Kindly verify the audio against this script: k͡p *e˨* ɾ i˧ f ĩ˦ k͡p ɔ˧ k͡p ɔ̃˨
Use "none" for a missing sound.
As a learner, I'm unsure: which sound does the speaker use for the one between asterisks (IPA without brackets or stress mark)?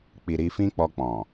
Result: i˨